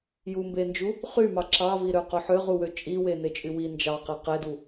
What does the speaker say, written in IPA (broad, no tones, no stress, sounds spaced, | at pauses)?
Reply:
j u m b e n d͡ʒ u | χ y m ɑ ǁ ɑ v i ɾ ø q o ħ ø ʁ u w ø t͡ʃʼ i w e n e t͡ʃʼ y w i n d͡ʒ ɑ q e q e d u